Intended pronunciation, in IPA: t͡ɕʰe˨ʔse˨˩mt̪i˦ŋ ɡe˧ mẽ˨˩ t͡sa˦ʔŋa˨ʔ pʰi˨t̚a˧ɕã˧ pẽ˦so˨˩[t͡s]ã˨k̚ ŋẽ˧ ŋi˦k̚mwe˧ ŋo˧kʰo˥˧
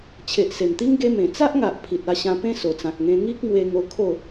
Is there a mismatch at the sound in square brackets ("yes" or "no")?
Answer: no